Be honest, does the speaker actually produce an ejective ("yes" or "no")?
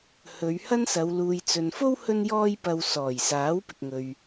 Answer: no